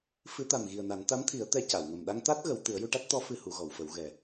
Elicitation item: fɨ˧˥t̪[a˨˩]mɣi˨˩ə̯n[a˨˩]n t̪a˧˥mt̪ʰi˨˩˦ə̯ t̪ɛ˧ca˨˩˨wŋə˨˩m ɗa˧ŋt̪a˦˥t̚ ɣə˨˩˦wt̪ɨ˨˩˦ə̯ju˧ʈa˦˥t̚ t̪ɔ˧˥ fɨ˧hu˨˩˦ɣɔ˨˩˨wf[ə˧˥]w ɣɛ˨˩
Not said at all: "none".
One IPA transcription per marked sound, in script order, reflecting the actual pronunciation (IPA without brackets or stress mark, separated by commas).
a˨˩, a˨˩˦, ə˨˩˦